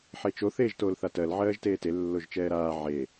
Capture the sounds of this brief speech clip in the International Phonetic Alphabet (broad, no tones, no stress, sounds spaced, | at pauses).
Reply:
ħ e t͡ʃ o θ eː ʒ t oː l θ a t ɜ l ʕ ɜː ʒ t eː t e lː o ʒ t͡ʃ ɛː ɾ aː ʕ e